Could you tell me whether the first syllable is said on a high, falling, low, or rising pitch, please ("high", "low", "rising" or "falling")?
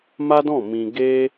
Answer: high